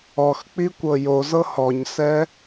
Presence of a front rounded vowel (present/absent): absent